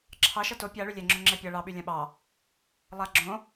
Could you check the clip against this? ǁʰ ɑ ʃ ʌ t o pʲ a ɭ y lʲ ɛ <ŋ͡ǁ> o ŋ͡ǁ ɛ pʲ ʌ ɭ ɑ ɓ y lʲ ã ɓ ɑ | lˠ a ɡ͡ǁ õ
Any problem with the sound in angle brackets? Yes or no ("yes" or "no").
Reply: no